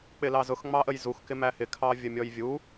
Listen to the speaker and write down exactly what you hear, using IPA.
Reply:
k͡p ɪ l ɑ z ʊ x ŋ͡m ɑ ʔ ə j z u x k ɪ m æ h ɪ kʰ ɑ vʲ ə mʲ ɔ j vʲ u

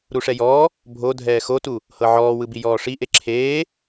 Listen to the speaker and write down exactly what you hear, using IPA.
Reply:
ɾ u ʂ ɛ j ɔː | bʱ o dʱ ɛː x o t u | h ɤ ʕ ɔː w ɯ b i j ɔː ʂ i ʔ e ǁʰ eː

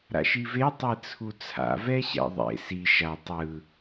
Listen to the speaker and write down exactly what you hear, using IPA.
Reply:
ɾ a̰ ʃ i v e tˤ e t͡sʰ u t͡sʰ a̰ v ɛ ɕ ɛ̰ ðˤ ḛ s i ʃ a tˤ ɯ

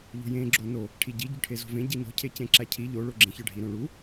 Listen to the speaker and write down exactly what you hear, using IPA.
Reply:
ʎ o̤ j ẽ ɡ͡ǁ o n o | ʈʰ i ɟ i ɟ o ʈʰ e z o̤ v ẽ ɟ i n o̤ cʰ e c ẽ ǁ æ cʰ i ʎ o ɭ o ɡ͡ǁ ẽ ç ɒ ɖʱ i ɾ õ ɭ u

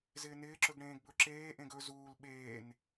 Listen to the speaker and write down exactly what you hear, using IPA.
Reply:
z ɪː n ɪː ǁ ɵ ɡ ɽ ẽː ɡ b ɵ ǁ eː ʔ ẽ ɡ ɵ z uː l ɓ eː n

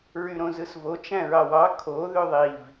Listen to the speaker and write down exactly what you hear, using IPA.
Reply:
ɹ y ɾ õ z ɯ s v o t͡ʃ æ̃ ɹ ɑ w ɑ kʰ o ð ø ðˤ i v

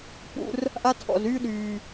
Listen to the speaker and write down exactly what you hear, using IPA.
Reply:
p ṵ˧ r | ʔ a˦ tʰ ɔ̰˨ z yː˦ ɗ yː˨

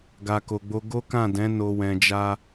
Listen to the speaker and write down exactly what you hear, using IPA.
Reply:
ɡ a˨ k o˨ ɡ͡b o˧ ɡ o˦ k ã˦˨ d ɛ̃˨˦ n o˧ w ɛ̃˧ d͡ʒ a˦

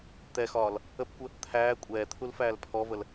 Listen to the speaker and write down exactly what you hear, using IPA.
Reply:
t̪ ɛ x ɒː l | ə p kʷ ə | t̪ʰ æː kʷʼ ɛː t̪ʰ u l f æː l pʰ ɔ v ə l

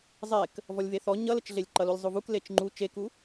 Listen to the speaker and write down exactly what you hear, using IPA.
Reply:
zˤ e k | v ɔ lʲ v e θ ɔ ɲ ʌ l ə t͡ʃ ɮ e lʲ ǃ ʌ l u lʲ zˤ u v u k l e t͡ʃ ŋ͡ǃ u t͡ʃ e k u

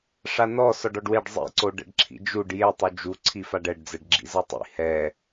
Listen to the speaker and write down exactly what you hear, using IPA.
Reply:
ʂ a n ɔ s ɔ ɖ ɔ ɖ w e ɖ zˤ ḭ ǀ o ɖ ɛ̰ ɖ ǁʰ ḭ d͡ʒ u ɖ j e tˤ u d͡ʒ u ǀʰ i f a ɖ ɛ ɖ d͡z ɛ ɖ ɡ͡ǁ ḭ z ɤ tˤ ḭ h ɛ

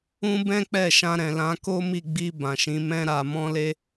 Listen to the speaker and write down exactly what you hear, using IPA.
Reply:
ũ˦ b ɛ̃˦ k͡p ɛ˦˨ ʃ ã˧ ɾ ɛ̃˨ l ã˧ k o˦ m i˦˨ ɡ͡b i˧ b ã˨ ʃ ĩ˨˦ m ɛ̃˦ ɾ a˧ m ɔ̃˦ l e˦

